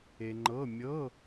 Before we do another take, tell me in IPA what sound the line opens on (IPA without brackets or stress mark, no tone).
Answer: e